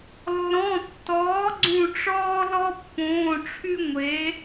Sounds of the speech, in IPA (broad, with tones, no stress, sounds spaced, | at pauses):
lː ɔ̃˩˧˩ tː ɔː˩˥ ɡ͡ǀ ũ˧˩ ʈ͡ʂ ɔː˦ l ɔ˦ pː õː˩˧˩ ʈ͡ʂʰ y˦ ŋʷ e˩˥